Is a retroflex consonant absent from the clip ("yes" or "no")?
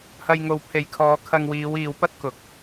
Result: yes